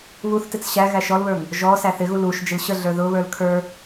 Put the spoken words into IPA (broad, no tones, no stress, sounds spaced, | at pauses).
β u θ t ɪ t͡s ɕ æ ɣ æ ʃ ɔ l β ə˞ ŋ | ʒ ɔ s æ θ ɪ ɣ u l u ʃ d͡ʒ ɪ l ɕ ə ɮ ə˞ ð ʊ β ə˞ l kʰ ə˞